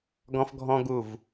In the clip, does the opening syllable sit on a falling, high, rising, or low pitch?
high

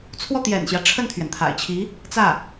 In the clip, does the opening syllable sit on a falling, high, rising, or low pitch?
falling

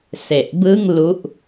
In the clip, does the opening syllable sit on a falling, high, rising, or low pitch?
low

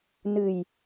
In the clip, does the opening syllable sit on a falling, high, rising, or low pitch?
low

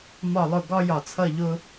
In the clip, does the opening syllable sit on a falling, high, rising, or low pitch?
falling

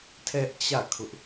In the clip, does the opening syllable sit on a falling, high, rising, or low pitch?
high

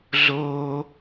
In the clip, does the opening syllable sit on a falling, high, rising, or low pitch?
high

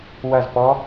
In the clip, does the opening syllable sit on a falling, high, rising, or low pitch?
falling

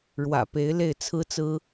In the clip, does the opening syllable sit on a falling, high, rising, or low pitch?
low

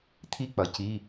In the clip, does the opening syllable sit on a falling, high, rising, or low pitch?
high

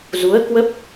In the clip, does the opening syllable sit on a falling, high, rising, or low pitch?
rising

